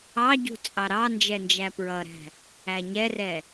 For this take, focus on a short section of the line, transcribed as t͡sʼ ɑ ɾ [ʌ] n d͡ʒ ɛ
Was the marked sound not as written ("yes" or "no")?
yes